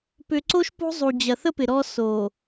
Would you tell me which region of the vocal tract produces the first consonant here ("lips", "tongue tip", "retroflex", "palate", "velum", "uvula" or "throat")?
lips